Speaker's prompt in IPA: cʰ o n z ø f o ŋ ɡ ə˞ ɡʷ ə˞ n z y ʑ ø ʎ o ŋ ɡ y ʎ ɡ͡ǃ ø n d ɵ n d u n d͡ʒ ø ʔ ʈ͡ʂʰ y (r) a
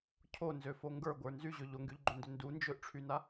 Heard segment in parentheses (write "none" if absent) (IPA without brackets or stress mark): n